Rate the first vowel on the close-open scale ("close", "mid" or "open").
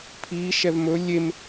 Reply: close